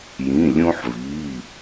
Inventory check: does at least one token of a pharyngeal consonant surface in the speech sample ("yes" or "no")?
yes